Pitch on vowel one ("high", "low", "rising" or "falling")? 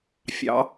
rising